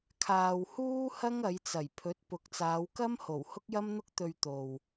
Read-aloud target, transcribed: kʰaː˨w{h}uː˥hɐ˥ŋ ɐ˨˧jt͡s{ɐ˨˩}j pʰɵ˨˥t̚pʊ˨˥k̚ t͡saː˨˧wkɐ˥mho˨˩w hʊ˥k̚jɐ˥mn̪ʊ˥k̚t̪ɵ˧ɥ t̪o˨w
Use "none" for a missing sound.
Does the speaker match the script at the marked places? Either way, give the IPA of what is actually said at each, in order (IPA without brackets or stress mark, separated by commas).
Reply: h, ɐ˨˩